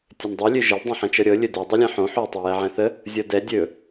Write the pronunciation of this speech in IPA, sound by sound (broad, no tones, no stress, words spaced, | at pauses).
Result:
tʲɵndˤɤ lʲøʒəl dˤõħɛ̃t͡ʃɤɾʲɤ lʲɵdo dˤølʲɛ̃ħõ ħø tˤɛjɛʕɛ̃θə | zʲɤdɛ dʲɵ